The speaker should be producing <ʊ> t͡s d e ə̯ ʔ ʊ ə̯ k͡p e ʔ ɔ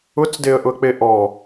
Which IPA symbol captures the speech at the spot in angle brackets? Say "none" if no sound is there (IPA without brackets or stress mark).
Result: ʊ